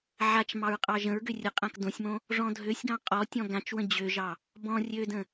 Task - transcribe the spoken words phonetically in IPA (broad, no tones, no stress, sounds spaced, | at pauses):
ʕ a t͡ʃ m ɑ ɹ qʼ ɑ ʒ ə̃ ɹ ɡ ø rʲ ə qʼ ã k d õ sʲ m õ | ʐ ɔ̃ dʱ ø sʲ ɡ ɑ̃ qʼ ɔ tʲ ɔ̃ ɡ ã t͡ʃ w ə̃ d͡ʑ ø ʒ ɑ | b ɔ̃ rʲ ø d ə̃